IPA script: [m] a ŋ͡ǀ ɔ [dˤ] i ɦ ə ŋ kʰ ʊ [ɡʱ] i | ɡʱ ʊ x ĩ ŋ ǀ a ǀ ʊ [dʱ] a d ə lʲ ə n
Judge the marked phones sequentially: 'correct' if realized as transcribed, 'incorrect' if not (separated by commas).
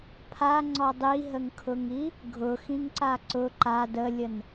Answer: incorrect, correct, incorrect, incorrect